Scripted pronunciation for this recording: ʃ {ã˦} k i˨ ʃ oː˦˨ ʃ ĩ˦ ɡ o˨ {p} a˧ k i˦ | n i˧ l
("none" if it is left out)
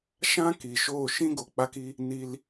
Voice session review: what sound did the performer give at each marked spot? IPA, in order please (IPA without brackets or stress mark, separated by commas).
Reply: ã˦, k͡p